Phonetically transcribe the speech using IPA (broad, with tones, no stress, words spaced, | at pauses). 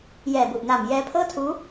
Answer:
jɛː˨˩bu˨˩ʔna˨˩m jɛː˦˥pʰɤː˥˩tʰuː˦˥